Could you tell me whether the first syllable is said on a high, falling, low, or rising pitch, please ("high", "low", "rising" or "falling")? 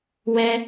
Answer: high